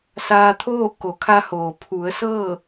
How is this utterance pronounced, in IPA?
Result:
s aː˧ t̪ʰ oː˥˨ k o˩˧ kʰ a˧ h oː˩ pʰ u˩˧ ə̯ s ɤː˥˨

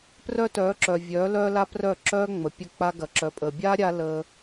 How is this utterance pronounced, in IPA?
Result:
p r œ˦ t œː˨˦ ǁ œ˨ vʲ œː˨˦ l œː˦ l a˦ p r œː˦˨ ǁ œː˦ ŋ͡m ə˨ pʲ ə˦˨ k͡p a˧ ɡ ɐ˨ ǁ œ˨ pʼ əː˨ bʲ aː˦ ɾʲ a˧ l əː˦

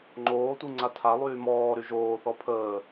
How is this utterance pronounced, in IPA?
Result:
ŋ͡ǃ oː tʷ i ŋ͡ǀ a tʰ a lˠ yː m ɔː ɾ y ʒ oː θ ɔ pʰ əː

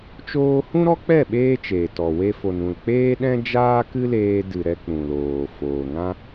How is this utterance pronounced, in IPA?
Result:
t͡ʃ oː˧ h ũ˦ ɾ ɔ˦ k͡p ɛ˦˨ ɓ eː˦ t͡ʃ eː˨ t ɔ˨ w e˧ f o˨ n ũ˨ l k͡p eː˦ ɗ ɛ̃˦ d͡ʒ aː˦ k ɨ˦ l eː˧ d ɨ˨ ɾ ɛ˧ k͡p ũ˨ l oː˨ f oː˨ ŋ ã˦

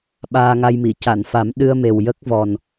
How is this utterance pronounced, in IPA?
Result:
ɓ aː˧ ŋ a˧ j m i˨˩˨ c a˨˩˨ n f a˨˩˦ m ɗ ɨ˧ ə̯ m e˨˩ w j ə˦˥ k̚ v ɔ˨˩ n

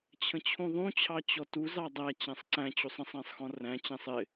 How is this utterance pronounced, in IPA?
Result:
t͡ɕʰ ə̃ t͡ɕʰ ũ ðˤ ũ t͡ɕʰ ɑ t͡ɕ ɔ t u z ɑ dˤ æ t͡ɕ æ̃ sˤ ǀ æ̃ t͡ɕ u sˤ ə̃ sˤ æ̃ sˤ x ɔ̃ r æ̃ t͡ɕ æ̃ sˤ ɪ

